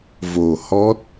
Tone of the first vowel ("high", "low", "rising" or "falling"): low